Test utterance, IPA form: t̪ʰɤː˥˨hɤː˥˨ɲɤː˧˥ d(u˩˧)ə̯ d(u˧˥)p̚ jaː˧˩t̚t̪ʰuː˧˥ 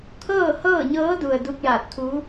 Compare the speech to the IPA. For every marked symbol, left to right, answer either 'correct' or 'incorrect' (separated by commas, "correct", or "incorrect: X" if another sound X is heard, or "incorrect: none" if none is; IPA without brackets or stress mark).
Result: incorrect: u˩, incorrect: u˧